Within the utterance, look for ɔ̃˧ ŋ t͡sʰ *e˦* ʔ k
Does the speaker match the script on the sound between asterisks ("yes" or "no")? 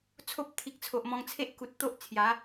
yes